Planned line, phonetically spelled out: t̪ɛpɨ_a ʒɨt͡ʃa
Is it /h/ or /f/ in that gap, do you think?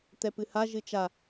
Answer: h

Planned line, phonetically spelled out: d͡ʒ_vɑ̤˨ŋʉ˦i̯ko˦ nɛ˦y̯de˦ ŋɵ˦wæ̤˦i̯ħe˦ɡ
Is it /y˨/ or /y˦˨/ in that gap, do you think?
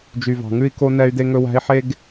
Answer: y˨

